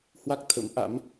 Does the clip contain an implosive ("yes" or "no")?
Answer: no